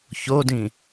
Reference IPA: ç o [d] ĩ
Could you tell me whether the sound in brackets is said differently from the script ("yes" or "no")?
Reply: no